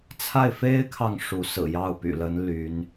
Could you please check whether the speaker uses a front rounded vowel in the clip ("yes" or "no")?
yes